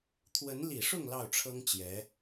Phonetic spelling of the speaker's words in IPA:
t̪ʰ w ə˧˥ n l i˨˩ ʂ ʊ˥˧ ŋ l ɑ˥˩ ʊ̯ ʈ͡ʂʰ ɤ˥ ŋ t͡ɕ j ɛ˧˥

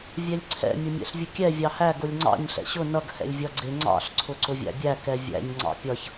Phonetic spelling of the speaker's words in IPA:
vʲ ɛ lʲ ǀʰ ɛ̰ mʲ ʊ mʲ ɛ̰ ɬ vʲ ʊ kʲ ɛ vʲ ɑ h æ ɡ ʊ lʲ ŋ͡ǀ ɑ̰ ɲ ɬ ɛ̰ ɕ ʊ n ʌ ɡ h ɛ̰ lʲ vʲ ʌ ɡ͡ǀ ɪ ŋ͡ǀ ɑ̰ ɬ ǀʰ ʊ ǀ ʊ vʲ æ̰ bʲ æ k ɛ vʲ æ̰ ɲ ŋ͡ǀ ɑ̰ pʲ ʌ ç

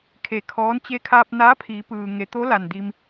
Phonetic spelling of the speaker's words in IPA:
kʰ e˧˩ kʰ ɔː˧˥ n t͡ɕ e˧ kʰ aː˧ p̚ n aː˧˥ pʰ iː˩˧ p ɯː˩ ŋ e˩˧ t̪ o˧˥ l a˧˩ n d i˧ m

